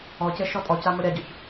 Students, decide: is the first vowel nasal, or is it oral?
oral